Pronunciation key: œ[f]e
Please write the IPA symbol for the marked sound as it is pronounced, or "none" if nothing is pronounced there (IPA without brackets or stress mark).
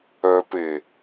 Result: p